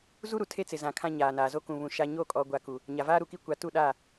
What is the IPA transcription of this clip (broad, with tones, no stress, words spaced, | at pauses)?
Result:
zu˦ɾu˨ tʰe˦t͡sɪ˨zã˨ kʰã˦ɲaː˨naː˨ zo˦kũ˨βũ˨ ʃa˦ ɲo˦˨kʼɔ˨ɡʷa˨ ku˨ | ɲa˨vaː˦ɾu˨ki˦ kʷa˨˦tu˦˨ɗaː˦˨